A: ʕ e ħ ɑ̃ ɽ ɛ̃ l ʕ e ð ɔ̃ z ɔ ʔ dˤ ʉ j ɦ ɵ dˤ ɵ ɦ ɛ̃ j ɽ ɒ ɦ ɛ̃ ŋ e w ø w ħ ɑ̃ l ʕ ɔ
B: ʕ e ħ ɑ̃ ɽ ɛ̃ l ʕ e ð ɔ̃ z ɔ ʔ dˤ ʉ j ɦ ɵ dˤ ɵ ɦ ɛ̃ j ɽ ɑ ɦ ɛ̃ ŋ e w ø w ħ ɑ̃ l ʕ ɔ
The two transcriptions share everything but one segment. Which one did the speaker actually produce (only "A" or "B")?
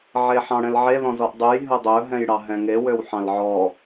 B